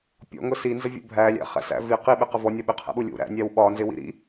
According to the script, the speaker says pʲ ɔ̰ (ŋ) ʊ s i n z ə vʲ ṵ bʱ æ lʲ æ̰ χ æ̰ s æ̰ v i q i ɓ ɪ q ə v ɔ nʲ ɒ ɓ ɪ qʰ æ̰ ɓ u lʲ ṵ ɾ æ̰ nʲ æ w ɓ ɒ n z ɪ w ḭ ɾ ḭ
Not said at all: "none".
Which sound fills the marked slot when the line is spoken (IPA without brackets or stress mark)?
ŋ